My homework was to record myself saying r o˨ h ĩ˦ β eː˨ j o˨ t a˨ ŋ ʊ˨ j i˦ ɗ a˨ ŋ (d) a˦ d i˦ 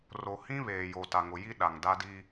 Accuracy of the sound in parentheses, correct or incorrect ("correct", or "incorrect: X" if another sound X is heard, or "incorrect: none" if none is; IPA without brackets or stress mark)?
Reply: correct